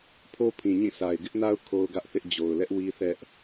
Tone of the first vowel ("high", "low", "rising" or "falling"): high